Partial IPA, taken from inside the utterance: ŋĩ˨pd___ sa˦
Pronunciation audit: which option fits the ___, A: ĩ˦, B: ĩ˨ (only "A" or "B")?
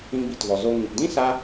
A